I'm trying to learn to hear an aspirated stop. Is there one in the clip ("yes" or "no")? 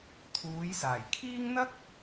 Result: yes